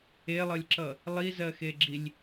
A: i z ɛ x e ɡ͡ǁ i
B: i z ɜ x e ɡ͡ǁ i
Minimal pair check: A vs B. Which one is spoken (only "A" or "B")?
B